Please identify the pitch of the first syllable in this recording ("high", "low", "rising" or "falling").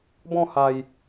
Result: falling